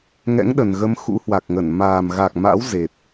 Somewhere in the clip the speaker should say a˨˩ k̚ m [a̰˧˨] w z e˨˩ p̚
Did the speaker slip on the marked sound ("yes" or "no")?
yes